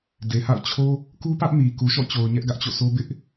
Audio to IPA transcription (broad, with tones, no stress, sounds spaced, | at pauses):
d e˨ h a̰˦˨ ʊ̯ t͡ɕʰ o˦ | k u˦ p ä˦ ʔ m i˨ k u˨ ʃ ɔ̰˦˨ t͡ɕ o˨ ʊ̯ ɲ ɛ˦ ʔ ɡ ä˦ ʔ t͡ɕ o̰˦˨ sʰ o˦ b ɪ˦ ʔ